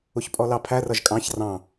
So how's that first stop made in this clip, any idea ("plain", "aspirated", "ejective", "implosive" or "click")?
ejective